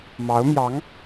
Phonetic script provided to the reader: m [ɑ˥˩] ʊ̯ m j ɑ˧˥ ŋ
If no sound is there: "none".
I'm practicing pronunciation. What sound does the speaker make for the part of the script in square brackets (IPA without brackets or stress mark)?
ɑ˧˥